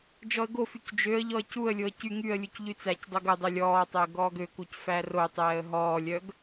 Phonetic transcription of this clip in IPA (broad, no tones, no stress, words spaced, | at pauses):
d͡ʒɔə̯ɡofyc d͡ʒøə̯ʎɔə̯ cuə̯lʲoə̯ cy ŋyə̯lʲuc ʎyt͡sæcdˤoɡ ɵdˤølʲ ɔːtˤɵə̯ ɡɔːɡøkuc færotˤɛːə̯ ɦɔːlʲœɡ